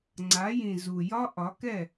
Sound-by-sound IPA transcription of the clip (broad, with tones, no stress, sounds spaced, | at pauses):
ŋ͡ǀ a˨˦ j ĩ˨ z u˨ j ɒ˦ ʔ ɒ˨˦ k ɛ˦˨